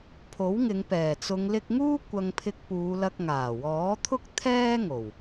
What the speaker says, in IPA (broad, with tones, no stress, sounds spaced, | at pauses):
pʰ o˨˥ w ŋ ɪ˨˧ ŋ p ɛː˨˩ t͡s ʊ˨˧ ŋ l ɪ˧ k̚ ŋ uː˥ kʷ ɐ˧ ŋ pʰ ɪ˧ k̚ p uː˨˧ l ɐ˧ k̚ ŋ aː˨˩ w ɔː˨˥ t̪ʰ ʊ˥ k̚ t̪ʰ ɛː˥ ŋ o˨˩ w